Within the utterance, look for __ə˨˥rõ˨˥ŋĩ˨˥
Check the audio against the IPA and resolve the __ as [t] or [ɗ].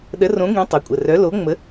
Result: ɗ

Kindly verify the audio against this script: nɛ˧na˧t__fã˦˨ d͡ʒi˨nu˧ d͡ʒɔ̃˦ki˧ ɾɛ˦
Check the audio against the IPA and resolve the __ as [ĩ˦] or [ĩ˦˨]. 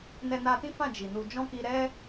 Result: ĩ˦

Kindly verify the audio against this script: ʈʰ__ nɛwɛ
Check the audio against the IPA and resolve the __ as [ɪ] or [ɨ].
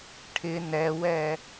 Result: ɪ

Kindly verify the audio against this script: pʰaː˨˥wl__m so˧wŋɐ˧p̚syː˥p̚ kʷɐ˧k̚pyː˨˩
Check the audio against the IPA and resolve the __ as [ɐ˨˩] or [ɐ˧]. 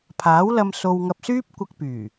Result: ɐ˧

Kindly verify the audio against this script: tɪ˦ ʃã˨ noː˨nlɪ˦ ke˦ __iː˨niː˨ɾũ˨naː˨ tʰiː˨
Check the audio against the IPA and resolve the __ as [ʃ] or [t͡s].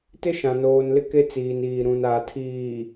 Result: t͡s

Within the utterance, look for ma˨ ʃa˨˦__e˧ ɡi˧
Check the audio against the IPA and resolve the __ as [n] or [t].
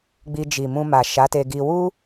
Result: t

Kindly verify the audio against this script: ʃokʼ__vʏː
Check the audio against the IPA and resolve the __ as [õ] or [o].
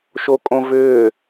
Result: õ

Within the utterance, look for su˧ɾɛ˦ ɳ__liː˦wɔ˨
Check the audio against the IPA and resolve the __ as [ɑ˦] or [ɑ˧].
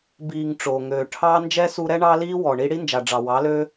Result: ɑ˦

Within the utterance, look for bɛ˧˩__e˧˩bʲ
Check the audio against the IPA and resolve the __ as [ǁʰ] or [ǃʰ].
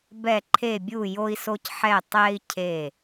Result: ǃʰ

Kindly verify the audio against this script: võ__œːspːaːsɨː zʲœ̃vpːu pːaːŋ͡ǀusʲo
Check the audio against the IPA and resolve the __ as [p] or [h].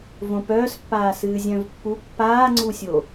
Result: p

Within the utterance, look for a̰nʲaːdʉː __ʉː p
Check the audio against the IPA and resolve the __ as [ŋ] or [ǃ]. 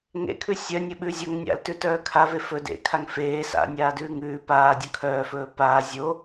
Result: ŋ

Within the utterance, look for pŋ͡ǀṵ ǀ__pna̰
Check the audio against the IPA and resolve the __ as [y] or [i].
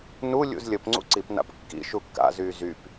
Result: i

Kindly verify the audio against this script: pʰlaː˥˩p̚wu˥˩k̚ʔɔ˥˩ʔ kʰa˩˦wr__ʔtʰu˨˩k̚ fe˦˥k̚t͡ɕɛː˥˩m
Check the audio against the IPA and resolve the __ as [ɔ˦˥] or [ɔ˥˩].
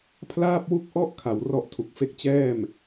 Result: ɔ˦˥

